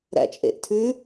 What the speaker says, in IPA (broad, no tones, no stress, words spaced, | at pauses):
ɾæ̰t͡ʃʼḛʔtʰʉ